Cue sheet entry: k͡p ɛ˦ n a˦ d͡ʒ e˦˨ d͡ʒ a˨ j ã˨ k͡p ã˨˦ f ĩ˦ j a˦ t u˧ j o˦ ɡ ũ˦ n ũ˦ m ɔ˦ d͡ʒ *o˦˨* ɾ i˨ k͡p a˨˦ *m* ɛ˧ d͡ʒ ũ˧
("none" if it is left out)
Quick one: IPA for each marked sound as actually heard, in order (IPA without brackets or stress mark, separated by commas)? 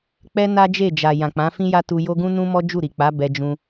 u˦˨, b